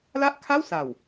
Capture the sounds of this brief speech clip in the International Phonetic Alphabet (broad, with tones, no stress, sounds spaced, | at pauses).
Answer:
l a˥˩ ʔ kʰ a˥˩ w s a˨˩ w